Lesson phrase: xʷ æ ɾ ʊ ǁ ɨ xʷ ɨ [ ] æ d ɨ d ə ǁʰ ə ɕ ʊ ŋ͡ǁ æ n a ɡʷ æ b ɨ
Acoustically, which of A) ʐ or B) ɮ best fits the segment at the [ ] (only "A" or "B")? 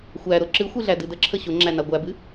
B